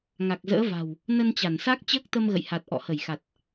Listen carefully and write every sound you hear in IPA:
ŋ a˨˩ k̚ z ə̰ː˧˥ v a̤˨˩ w | n ə˧ n t͡ɕ a˧˩ n s a˦˥ k̚ t͡ɕ əː˦˥ k̚ t̪ ə˧ m ɣ ə̰˧˨ j h a˨˩ t̚ ʔ ɔ̰˧˨ h ə˧˩ j x a˨˩ t̚

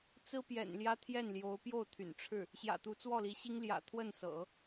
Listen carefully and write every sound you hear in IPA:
t͡s ɹ̩˥ p j ɛ̰˨˩ n l j ä˥ t̪ʰ j ɛ˥˩ n l j o˧˥ ʊ̯ p j o˥˩ ʊ̯ t̪ʰ y̰˨˩ n ʈ͡ʂʰ ɻ̩˥˩ | ɕ j ä̰˨˩ t̪ u˧˥ t͡s w ɔ˥˩ l i˧˥ ɕ i˥ ŋ l j ä̰˨˩ t̪ʰ w ə˥˩ n s ɤ̰˨˩˦

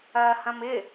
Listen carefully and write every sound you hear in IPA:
ɐː h ɐ̃ m ɪ

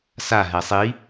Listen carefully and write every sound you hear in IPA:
s a ɦ ɛ sˤ i

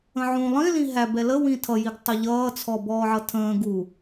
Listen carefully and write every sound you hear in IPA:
ə̃ ʕ ũ lˠ ĩ l ĩ ɦ æ b ɛ l ə w ĩ tʰ ʌ j i ɡ tˤ u ʎ ʌː t͡sʰ ɔ b ɔː ʕ ʌ tʰ ə̃ː ɡ u

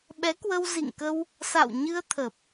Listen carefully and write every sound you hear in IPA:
ɓ ɛ˨˦ k w ə˧ w z ḭ˧˨ ŋ k ə˧ w | s a̰˧˨ w ɲ ɨ˧ ə̯ t̪ʰ ə˨˩ p̚

